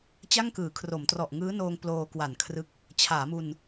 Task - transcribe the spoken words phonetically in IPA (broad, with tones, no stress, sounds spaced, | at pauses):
t͡ɕ a˥˩ ŋ k ɯː˩˦ kʰ r o˩˦ m t r ɔ˨˩ ʔ ŋ ɯː˦˥ n oː˧ ŋ p l oː˧ k w a˨˩ n kʰ r ɯ˦˥ k̚ | t͡ɕʰ aː˩˦ m u˧ n